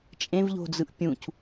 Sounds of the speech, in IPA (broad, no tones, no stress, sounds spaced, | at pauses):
t͡ʃʼ ẽ v ʎ o̤ d͡z ɯ ʔ pʲ ũ c